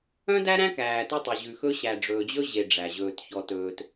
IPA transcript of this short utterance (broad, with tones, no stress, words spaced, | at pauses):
œ̃˦dæ˦ ɾæ̃˦kæː˨ tɵ˦tˤɵ˨ ʑʉ˨xɵ˦ ɕæ˨ɖ͡ʐɵː˨d͡ʑɵ˦ ʑe˨ ɖ͡ʐæ˨ ʑɵː˨tçɔ˨tɵː˨t